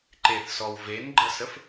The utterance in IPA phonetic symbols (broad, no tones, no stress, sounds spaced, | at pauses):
ǃ e θ s ɔ w v e n ɡ͡ǃ ə s ə f